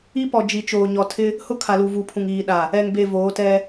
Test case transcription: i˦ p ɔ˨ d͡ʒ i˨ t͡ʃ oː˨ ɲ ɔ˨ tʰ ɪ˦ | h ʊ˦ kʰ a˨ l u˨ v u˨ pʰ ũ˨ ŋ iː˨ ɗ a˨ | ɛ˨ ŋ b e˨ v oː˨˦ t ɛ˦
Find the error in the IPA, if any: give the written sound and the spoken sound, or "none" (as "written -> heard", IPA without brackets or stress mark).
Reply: none